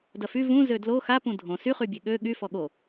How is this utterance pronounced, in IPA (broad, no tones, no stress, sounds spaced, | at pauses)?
d ɐ f y v ũ z ø d l o x a p ũ dʱ õ s y χ y bʲ e ɠ ø ɠ y f ɔ ɠ o